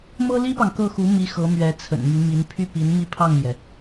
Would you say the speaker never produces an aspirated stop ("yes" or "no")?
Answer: no